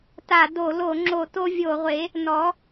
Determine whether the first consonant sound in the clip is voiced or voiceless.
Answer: voiceless